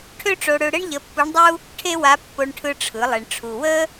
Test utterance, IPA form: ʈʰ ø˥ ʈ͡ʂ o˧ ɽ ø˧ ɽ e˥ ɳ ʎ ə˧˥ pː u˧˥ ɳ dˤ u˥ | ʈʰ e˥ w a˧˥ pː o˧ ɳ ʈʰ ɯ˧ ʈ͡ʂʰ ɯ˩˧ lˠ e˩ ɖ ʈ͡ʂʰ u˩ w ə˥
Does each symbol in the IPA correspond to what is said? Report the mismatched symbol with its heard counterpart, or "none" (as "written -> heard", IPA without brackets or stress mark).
ɖ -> ɳ